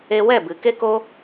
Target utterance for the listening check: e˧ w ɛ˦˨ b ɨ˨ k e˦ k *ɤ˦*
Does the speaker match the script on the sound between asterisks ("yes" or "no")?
no